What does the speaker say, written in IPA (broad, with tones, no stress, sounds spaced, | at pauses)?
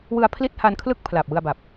w ɯ˧ a̯ pʰ l i˥˩ t̚ h a˧ n kʰ l ɯ˥˩ k̚ pʰ l aː˨˩ p̚ w ɯ˧ a̯ b a˨˩ p̚